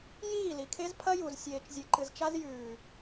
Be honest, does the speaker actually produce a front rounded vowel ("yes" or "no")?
no